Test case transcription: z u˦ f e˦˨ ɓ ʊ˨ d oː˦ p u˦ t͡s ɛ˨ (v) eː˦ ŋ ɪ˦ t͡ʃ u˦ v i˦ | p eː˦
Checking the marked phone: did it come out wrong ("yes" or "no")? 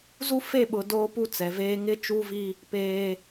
no